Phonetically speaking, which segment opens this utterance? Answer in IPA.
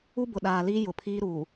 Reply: u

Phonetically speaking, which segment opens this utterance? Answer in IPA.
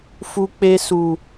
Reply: f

